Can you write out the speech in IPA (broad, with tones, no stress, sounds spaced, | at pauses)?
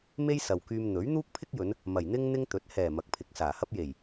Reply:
m e˥ j s ɐ˨ w k yː˧ m n̪ ɵ˨˥ ɥ n̪ uː˥ k̚ pʰ ɪ˥ k̚ j ɵ˨˧ n | m ɐ˨˩ j n̪ ɪ˥ ŋ n̪ ɪ˥ ŋ t̪ ɵ˨˥ t̚ h ɛː˨˩ m ɐ˨˥ k̚ pʰ ɪ˨˥ k̚ s aː˨˩ h ɐ˥ p̚ j e˨˩ j